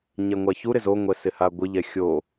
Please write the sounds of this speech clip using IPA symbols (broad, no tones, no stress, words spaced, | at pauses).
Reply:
ɲɛŋʷaçu ɾɪzoŋʷɛ sɪhaɡʷɪʎɛ xʲo